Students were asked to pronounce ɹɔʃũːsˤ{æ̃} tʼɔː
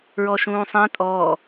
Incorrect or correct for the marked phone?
correct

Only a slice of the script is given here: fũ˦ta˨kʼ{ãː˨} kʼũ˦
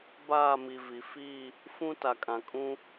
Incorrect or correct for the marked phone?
incorrect: ã˨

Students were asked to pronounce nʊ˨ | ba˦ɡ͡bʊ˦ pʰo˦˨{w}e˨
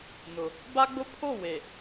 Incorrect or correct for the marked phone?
correct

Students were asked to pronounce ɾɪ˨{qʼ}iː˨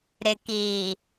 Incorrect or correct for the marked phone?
incorrect: k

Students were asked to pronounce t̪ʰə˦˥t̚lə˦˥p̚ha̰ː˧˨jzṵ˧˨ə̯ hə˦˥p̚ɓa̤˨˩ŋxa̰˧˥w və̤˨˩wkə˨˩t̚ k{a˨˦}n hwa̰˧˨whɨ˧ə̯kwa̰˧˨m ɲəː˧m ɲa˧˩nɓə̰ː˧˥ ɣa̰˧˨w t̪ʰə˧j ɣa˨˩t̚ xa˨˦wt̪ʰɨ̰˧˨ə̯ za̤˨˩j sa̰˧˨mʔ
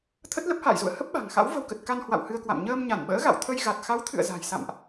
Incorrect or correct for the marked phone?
incorrect: a˧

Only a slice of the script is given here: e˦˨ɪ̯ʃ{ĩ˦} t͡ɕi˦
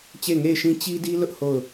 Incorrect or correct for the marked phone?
correct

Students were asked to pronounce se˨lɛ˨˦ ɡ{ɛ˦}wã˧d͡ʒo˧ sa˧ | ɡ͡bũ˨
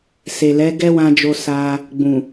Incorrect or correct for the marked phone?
correct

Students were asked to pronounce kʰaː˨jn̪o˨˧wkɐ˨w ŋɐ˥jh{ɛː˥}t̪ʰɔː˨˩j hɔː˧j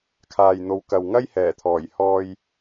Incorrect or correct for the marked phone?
incorrect: ɛː˨˩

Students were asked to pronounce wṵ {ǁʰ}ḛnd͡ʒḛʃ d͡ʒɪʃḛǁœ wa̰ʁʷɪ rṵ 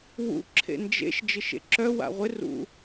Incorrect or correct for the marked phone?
correct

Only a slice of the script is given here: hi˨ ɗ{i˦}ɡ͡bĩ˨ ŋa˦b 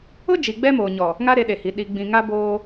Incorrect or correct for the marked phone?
incorrect: i˨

